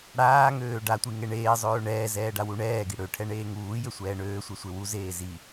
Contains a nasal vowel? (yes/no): no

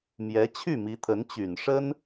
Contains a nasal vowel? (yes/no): no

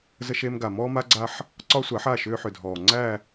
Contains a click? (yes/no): yes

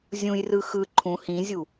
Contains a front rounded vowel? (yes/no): no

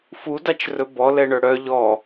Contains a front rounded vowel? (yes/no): yes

